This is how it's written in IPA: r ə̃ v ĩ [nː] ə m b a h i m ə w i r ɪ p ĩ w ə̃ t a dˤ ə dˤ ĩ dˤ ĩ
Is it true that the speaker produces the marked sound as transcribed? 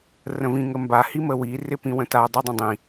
no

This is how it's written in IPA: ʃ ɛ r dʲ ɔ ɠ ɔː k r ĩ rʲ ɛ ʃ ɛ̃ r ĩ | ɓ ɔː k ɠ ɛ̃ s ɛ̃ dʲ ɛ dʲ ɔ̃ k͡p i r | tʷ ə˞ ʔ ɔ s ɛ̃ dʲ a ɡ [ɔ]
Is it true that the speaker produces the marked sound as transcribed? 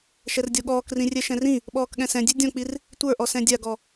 yes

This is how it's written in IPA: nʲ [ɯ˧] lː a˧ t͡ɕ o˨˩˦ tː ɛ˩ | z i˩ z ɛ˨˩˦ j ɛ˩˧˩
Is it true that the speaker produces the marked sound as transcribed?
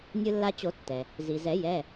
yes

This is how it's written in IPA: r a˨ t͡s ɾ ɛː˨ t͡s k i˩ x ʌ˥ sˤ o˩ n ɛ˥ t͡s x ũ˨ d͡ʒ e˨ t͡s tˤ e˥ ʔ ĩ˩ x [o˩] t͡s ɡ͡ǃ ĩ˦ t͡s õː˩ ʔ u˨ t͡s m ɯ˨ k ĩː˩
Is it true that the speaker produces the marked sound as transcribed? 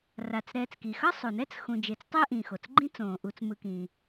yes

